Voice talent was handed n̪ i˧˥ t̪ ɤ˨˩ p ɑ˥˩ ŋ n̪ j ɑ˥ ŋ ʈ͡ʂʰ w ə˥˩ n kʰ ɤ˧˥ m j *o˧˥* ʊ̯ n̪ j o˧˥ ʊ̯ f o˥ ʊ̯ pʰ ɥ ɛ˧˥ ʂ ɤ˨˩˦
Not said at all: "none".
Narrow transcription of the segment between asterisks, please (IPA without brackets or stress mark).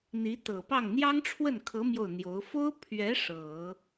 o˥˩